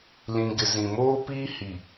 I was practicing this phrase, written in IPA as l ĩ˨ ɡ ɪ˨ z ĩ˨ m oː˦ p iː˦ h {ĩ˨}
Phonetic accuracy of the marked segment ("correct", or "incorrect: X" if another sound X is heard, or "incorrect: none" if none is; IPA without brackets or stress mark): incorrect: i˨